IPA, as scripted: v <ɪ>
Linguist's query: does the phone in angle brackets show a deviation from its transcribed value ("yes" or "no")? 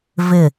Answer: no